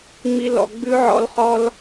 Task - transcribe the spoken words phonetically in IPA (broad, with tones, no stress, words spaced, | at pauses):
ŋ͡mi˧ lɔ̰˨ ɡ͡bʉ˦ ʕɔ̰˦lχɔ˦l